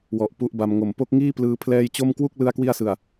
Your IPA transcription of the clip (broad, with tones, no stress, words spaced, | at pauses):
wɔ˨˩ʔpu˦˥ʔba˧mŋo˨˩m po˦˥k̚ŋiː˥˩plɯː˧ pʰlɛː˧j t͡ɕo˥˩m kwu˥˩k̚ lɯ˥˩a̯kwi˥˩a̯sɯ˨˩a̯